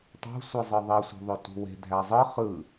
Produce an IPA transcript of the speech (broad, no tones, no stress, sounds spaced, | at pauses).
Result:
tˤ ṳ sʷ ɯ zˤ ɯ ðˤ i sʷ e̤ ðˤ ø t ṳ w e̤ dʱ æ zˤ ɯ χ ɯ